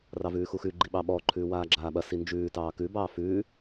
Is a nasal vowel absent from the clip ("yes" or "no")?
yes